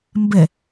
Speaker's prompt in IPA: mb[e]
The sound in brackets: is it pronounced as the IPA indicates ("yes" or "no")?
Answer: no